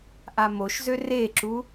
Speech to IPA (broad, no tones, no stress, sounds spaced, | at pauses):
ʔ a m o ʃ z ø r e ǁ u